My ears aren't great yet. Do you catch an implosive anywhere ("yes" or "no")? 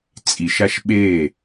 yes